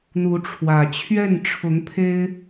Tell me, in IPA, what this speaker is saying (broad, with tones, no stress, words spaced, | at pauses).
n̪u˧˥ʈ͡ʂʰwä˨˩ t͡ɕʰɥɛ˥˩nʈ͡ʂʰʊ˧˥ŋpʰe˥ɪ̯